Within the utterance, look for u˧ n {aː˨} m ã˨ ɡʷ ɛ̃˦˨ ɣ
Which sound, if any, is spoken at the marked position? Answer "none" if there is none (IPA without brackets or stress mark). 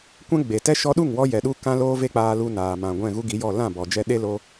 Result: aː˨